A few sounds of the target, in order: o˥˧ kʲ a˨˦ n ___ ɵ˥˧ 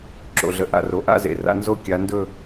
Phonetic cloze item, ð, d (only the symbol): d